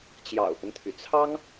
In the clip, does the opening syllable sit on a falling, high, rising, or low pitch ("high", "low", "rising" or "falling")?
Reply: low